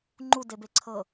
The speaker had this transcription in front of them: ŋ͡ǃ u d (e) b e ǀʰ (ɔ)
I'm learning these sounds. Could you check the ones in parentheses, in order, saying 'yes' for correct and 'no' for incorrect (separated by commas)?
yes, no